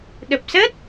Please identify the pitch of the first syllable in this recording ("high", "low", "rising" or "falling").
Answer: low